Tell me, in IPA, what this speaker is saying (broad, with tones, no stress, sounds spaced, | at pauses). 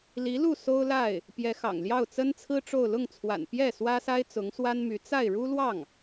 l i˧˥ l u˥˩ s o˥ ʊ̯ l a˥˩ ɪ̯ | p j ɛ˧˥ x ɑ̰˨˩ ŋ l j ɑ˥˩ ʊ̯ t͡s ə˥ n t͡sʰ ɹ̩˥ ʈ͡ʂ o˥˧ ʊ̯ l ʊ˥˩ ŋ t͡sʰ w a̰˨˩ n p j ɛ˥˩ s w ä˥ s a˥ ɪ̯ t͡s ʊ˧˥ ŋ s w a˥ n m y˧˥ t͡s a˥˩ ɪ̯ ɻ u˥ l w ɑ˥˩ ŋ